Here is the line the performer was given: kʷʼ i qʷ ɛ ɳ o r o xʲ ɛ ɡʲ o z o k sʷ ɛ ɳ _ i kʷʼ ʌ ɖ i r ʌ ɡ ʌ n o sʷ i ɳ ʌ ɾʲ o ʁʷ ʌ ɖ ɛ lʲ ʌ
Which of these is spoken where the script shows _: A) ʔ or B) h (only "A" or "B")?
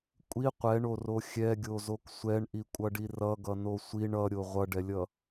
A